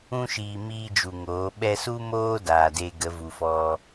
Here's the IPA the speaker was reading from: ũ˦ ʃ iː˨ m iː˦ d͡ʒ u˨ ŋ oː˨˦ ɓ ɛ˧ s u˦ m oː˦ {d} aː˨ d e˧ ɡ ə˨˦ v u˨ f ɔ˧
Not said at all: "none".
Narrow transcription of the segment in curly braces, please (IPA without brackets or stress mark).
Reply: d